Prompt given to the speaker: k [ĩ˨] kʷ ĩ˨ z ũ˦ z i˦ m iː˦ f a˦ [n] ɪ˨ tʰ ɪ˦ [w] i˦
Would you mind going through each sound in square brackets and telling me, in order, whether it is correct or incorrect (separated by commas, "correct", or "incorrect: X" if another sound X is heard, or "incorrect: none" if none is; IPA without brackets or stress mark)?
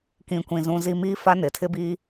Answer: correct, correct, incorrect: b